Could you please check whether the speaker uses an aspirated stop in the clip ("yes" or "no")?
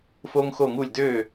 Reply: no